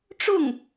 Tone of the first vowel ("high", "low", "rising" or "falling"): falling